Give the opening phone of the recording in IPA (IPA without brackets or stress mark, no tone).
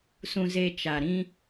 s